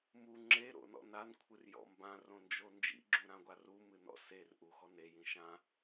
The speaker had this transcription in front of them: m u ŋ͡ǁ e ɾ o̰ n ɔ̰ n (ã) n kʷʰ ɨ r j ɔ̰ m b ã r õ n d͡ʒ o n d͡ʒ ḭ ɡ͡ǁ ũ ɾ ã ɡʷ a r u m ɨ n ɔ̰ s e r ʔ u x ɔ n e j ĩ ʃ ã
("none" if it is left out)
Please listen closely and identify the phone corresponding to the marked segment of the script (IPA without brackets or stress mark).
a